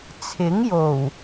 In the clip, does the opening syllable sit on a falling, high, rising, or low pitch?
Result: rising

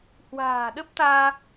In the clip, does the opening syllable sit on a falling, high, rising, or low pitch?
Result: low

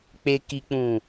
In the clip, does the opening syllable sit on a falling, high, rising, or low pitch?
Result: low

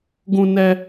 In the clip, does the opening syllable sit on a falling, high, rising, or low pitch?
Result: high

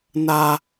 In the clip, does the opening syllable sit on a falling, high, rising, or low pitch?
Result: high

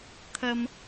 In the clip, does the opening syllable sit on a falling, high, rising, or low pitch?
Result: high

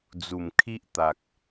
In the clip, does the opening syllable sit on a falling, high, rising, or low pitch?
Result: low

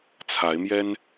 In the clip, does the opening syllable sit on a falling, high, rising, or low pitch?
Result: rising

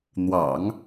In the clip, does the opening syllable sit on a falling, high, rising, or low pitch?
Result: low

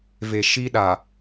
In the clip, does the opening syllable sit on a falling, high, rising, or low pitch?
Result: low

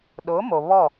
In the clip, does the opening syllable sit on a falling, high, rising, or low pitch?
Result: rising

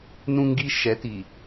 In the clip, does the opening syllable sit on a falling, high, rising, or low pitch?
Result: high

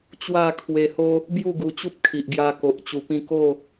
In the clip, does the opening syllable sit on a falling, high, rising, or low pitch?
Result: falling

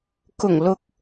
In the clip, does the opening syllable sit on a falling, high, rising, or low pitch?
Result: low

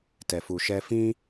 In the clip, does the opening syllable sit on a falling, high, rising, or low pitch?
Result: low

